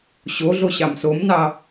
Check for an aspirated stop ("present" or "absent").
absent